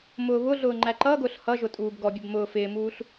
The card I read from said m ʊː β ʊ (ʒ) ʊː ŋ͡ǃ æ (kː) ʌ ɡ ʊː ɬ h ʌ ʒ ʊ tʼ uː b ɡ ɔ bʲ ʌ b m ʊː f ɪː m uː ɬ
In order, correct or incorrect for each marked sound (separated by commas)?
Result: incorrect, incorrect